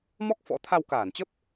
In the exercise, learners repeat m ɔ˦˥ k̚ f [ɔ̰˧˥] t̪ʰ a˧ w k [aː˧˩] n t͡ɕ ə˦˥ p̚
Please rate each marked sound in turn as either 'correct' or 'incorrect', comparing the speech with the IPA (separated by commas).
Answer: correct, correct